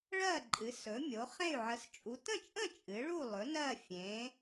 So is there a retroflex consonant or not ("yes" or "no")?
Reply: yes